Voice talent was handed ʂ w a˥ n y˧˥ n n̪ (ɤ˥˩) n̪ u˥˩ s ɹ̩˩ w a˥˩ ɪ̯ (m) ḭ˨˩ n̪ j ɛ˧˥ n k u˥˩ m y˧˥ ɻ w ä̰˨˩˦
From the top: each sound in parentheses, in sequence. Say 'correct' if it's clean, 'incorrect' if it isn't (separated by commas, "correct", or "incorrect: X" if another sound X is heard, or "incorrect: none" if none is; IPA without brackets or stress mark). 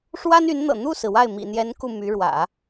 incorrect: ɤ̰˨˩, correct